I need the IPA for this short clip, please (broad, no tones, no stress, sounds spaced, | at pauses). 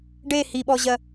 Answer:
ɖ e h i ɓ ɔ ʑ ɜ